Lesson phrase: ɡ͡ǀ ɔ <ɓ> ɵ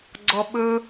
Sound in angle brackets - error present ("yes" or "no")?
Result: no